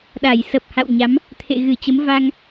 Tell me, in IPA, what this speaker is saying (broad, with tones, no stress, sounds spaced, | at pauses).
ɗ a˧˩ j s ə˨˩ p̚ h a̰˧˨ w ɲ a˨˦ m | t̪ʰ ḛ˧˨ ɣ ɨ˧˩ t͡ɕ ə˨˦ m v a˧ ŋ